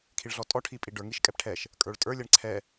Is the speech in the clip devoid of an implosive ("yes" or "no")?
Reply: yes